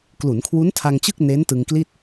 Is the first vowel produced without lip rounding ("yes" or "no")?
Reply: no